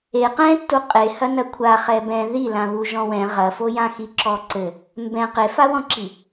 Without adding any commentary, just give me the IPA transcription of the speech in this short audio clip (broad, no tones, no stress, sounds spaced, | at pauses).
e q ɛ̃ tː u qʼ e h ɐ n ɐ kʷʰ a χ ɛ b ɛ̃ ð i l ã β u ʒ ɔ̃ w ɛ̃ ʁ ɐ f o j ã x i ǁ ɔ ǀ ɘ | m b ɛ̃ q e f a w ɔ̃ ǁ i